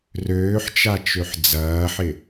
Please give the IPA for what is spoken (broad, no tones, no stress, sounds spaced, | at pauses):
r øː ħ t͡ʃ a t͡ʃ ø ħ d͡z ɐː ħ ɪ